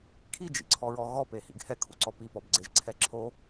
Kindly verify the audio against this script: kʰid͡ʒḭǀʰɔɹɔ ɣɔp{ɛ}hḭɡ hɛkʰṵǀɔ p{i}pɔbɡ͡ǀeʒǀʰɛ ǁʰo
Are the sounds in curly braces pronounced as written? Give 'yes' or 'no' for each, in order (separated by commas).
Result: no, yes